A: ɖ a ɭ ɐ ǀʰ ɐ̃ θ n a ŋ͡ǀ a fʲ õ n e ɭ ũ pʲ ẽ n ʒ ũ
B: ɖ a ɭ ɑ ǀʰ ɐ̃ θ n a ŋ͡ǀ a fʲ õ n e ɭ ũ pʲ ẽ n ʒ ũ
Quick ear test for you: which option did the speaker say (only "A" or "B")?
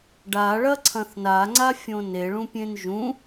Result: A